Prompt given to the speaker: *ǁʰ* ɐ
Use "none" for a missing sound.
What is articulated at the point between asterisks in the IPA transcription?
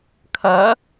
kʰ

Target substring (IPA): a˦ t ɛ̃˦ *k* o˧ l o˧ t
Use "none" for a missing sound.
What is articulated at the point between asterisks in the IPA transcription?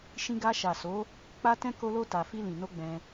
k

